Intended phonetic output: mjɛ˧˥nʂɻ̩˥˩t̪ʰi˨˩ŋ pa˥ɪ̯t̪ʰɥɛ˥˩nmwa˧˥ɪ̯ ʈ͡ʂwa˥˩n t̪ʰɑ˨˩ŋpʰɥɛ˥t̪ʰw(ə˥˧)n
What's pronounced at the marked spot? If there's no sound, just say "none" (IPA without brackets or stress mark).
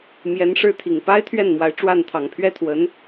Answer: ə˧˥